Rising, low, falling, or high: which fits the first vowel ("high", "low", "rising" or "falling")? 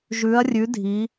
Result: rising